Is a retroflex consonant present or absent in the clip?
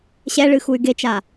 present